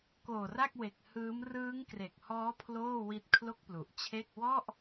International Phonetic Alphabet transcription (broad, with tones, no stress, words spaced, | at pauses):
koː˨˩ra˥˩k̚we˨˩k̚ hɯː˦˥m rɯː˦˥ŋkre˨˩k̚hɔː˦˥ pʰloː˥˩wi˦˥t̚ kʰlo˥˩k̚plu˨˩ʔt͡ɕʰe˥˩k̚ wɔ˥˩ʔ